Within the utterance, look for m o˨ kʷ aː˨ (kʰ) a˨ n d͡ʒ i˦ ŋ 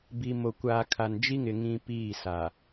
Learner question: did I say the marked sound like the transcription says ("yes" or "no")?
yes